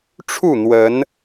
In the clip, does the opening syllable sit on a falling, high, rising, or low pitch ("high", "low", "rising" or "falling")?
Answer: falling